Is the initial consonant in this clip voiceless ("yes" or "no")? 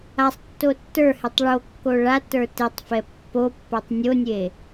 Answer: yes